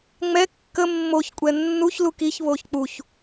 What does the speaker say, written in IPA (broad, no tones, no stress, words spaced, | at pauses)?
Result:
ŋ͡mɛ kːə mːoçkʷʼɛ nːuç lukiçβoç k͡puç